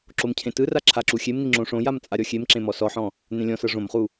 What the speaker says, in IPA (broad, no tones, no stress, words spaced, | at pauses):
ǁomcʰẽtɯra ǁʰaǁuxʲemni ŋ͡ǁõʂõjam t͡sʼaɾʲɔxʲemǁẽ mɔsɔħɔ̃ | nẽlʲɔ̃sɤ ʐõmχu